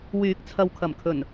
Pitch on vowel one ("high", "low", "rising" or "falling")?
rising